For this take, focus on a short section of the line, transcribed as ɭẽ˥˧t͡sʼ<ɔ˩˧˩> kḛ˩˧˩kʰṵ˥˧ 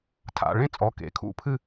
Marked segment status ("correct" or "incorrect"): correct